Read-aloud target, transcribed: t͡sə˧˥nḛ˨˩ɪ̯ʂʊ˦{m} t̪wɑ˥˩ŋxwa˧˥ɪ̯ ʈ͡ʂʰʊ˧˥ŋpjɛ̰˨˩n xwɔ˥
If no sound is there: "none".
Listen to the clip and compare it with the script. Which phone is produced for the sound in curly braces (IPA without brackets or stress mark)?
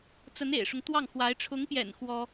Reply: ŋ